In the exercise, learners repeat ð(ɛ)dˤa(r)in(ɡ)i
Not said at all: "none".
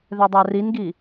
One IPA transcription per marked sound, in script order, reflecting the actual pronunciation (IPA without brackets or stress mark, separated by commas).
ɛ, r, ɡ